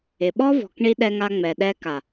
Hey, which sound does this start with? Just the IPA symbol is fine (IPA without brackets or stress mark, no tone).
ɪ